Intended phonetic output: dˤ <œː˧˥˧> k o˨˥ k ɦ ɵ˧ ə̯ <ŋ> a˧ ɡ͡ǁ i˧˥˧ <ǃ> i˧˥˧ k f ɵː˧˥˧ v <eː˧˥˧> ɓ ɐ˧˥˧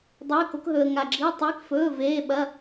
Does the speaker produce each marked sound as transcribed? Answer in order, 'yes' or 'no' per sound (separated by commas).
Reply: no, yes, no, yes